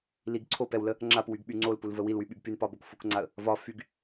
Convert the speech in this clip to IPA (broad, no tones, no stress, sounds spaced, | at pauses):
l i ɡ ǀʰ o p ɛ w l ə | ŋ͡ǁ a p w y ɡ ɓ y ŋ͡ǀ o l p u l v ə w i l w y ɓ y ɡ p y n p ɒ b o k f u k ŋ͡ǀ a ə̯ | v ɒ f y ɡ